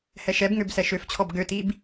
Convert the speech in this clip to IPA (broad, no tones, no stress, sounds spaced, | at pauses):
h ɛ ʃ ɛ b ŋ ø b s ɛ ʃ ø f t͡ɕʰ ɔ b ɡ ø t i b